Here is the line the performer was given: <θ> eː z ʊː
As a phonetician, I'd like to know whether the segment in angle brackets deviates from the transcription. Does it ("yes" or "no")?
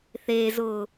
no